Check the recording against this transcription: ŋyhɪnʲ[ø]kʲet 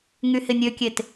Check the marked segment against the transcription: correct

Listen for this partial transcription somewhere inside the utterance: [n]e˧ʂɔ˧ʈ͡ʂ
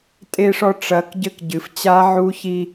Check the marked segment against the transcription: incorrect: tʼ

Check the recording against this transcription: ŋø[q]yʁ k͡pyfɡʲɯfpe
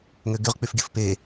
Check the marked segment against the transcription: incorrect: ɡ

